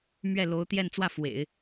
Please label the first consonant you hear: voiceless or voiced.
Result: voiced